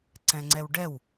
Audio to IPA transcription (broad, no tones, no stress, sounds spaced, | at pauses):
ǀ ɛ̃ ŋ͡ǀ ɛ w ɖ ɛ w